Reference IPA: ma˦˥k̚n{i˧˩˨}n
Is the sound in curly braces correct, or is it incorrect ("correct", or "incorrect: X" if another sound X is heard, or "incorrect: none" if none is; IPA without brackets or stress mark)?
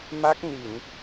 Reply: correct